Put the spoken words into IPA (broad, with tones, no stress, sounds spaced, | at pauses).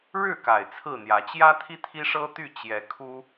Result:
ɻ ɻ̩˥˨ k a˨˩ ɪ̯ t͡sʰ ɹ̩˥˨ n̪ j ä˨˦ t͡ɕ j ä˦ t̪ʰ i˦ t̪ʰ i˦ ʂ ɤ˦ t̪ y˥˨ t͡ɕ j ɛ˨˦ kʰ u˦